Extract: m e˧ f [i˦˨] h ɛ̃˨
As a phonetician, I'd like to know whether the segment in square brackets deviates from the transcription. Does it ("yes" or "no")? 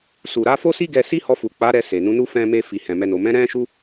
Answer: yes